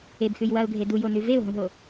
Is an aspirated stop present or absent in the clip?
absent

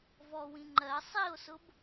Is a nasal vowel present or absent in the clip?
present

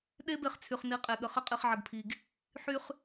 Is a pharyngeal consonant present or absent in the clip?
present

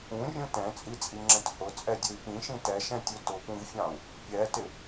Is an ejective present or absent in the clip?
present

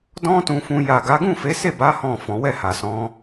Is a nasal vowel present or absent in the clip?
present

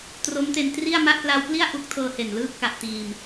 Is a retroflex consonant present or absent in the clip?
absent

